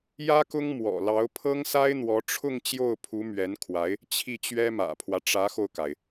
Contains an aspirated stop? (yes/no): yes